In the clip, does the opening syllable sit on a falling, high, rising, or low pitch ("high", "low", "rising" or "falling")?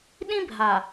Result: high